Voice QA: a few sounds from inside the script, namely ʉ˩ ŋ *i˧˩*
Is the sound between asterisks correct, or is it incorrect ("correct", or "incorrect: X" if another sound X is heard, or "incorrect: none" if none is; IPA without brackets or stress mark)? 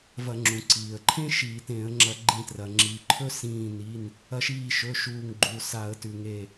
incorrect: e˧˩